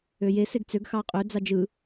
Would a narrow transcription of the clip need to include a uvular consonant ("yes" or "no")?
yes